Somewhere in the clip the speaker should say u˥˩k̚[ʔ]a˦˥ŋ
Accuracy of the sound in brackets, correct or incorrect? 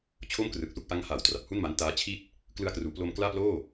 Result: correct